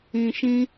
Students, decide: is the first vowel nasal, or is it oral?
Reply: nasal